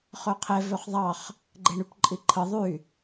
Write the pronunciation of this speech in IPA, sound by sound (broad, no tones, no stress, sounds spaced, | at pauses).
χ ø qʰ e v ø χ ðˤ ɑ χ | ɡ͡ǃ e ɳ y p ǃʼ i ǃʰ ɯ ðˤ y